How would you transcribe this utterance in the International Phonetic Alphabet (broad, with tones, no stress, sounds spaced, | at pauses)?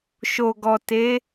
ʃ o˨ ɡ ɔ˨ t e˨˦